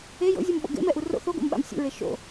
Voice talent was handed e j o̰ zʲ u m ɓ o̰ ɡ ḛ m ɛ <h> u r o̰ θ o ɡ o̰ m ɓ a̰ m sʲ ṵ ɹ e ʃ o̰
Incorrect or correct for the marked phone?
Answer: incorrect: ʔ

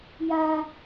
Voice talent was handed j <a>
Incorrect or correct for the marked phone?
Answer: correct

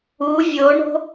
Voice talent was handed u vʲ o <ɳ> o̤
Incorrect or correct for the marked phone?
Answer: correct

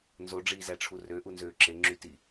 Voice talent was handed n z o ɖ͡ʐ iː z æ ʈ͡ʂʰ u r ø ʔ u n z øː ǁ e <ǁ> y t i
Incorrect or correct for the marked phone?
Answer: incorrect: ŋ͡ǁ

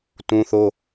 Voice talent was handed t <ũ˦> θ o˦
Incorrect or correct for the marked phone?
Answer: correct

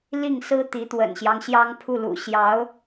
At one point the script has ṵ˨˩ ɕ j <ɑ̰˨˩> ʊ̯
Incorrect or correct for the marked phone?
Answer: incorrect: ɑ˧˥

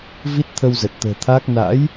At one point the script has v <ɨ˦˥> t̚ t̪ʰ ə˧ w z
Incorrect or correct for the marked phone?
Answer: incorrect: i˦˥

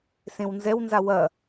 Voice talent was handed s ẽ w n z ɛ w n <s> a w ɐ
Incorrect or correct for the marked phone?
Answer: incorrect: z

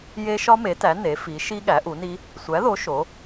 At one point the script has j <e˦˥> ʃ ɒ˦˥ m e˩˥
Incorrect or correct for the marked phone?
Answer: correct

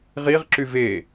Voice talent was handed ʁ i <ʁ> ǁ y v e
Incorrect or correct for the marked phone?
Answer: correct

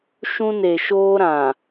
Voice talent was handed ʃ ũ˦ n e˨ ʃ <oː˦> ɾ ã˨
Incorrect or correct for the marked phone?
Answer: correct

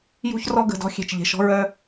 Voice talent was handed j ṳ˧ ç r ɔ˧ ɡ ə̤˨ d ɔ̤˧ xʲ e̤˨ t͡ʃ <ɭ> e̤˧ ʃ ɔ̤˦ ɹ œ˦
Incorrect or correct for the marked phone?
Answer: incorrect: ʎ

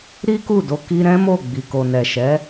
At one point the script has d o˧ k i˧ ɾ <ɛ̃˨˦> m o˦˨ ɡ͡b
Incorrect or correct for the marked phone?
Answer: incorrect: ɛ̃˦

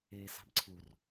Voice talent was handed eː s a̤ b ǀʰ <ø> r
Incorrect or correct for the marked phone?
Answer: incorrect: u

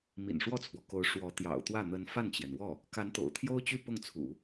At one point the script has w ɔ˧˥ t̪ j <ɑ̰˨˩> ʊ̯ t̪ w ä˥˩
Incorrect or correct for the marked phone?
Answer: correct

